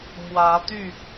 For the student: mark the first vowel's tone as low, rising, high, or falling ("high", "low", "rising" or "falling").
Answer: rising